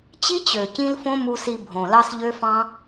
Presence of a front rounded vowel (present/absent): present